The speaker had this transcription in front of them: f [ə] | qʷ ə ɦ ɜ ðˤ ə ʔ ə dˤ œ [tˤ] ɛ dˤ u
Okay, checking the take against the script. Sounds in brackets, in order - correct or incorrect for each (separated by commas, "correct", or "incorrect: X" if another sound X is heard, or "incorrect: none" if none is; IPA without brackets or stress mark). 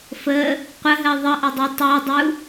correct, correct